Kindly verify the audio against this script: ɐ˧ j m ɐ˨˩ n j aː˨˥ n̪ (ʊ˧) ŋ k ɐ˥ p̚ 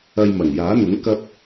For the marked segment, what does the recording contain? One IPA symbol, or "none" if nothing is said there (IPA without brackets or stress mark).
ʊ˨˥